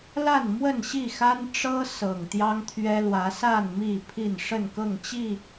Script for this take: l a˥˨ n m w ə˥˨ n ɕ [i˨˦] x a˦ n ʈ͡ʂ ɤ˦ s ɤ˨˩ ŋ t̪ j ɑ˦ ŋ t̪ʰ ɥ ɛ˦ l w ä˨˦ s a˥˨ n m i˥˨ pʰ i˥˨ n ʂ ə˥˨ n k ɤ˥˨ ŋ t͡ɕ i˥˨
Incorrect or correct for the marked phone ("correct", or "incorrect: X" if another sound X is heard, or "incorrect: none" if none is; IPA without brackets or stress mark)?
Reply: incorrect: i˥˨